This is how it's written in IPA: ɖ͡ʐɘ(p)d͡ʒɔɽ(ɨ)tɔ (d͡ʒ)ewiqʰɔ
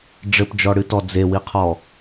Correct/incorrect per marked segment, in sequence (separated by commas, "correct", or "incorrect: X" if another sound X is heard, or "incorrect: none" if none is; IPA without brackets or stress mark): correct, correct, incorrect: d͡z